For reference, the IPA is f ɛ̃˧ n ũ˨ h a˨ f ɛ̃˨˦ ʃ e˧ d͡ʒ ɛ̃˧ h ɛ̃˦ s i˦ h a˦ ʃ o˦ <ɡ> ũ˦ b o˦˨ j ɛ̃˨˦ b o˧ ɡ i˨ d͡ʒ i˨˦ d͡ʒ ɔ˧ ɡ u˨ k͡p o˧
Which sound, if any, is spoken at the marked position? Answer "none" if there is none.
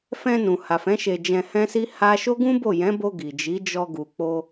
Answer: ɡ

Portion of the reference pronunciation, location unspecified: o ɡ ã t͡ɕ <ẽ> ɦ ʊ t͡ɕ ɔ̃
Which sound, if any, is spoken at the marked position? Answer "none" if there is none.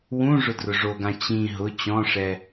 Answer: ĩ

